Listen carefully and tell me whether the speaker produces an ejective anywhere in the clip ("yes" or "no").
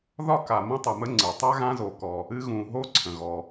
no